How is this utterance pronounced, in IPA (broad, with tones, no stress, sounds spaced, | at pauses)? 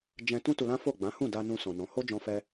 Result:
d͡ʒ ɛ̃˦ t ũ˦ t u˧ l ã˦ f o˦˨ ɡ͡b ã˨˦ h ũ˦˨ d a˧ n ũ˧ s ɔ̃˨ n ɔ̃˨˦ h o˦ d͡ʒ ɔ̃˧ f ɛ˧